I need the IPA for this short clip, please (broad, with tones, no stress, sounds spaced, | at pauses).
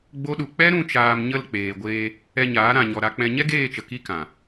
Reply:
ɡ͡b o˦ ɗ u˧ k͡p ɛ˦ ɾ ũ˦˨ t͡ʃ aː˧ m ɲ ə˦˨ l k͡p eː˨ ɡʷ eː˧ | ɛ˧ ɲ aː˨˦ ɾ ã˨ ɲ ɔ˨ ɾ a˧ k͡p ɛ̃˧ ɲ ɛ˦ ɡ eː˦˨ t͡ʃ ə˨ k i˦ k ã˨